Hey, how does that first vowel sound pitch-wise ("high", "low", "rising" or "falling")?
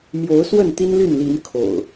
rising